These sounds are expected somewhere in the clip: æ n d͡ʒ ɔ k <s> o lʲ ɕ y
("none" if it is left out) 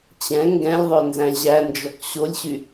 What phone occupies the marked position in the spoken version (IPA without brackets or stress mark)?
ɕ